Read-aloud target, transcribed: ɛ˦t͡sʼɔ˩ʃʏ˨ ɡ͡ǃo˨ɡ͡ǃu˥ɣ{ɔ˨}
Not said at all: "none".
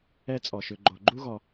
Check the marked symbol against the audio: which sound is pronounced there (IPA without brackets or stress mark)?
ɔ˨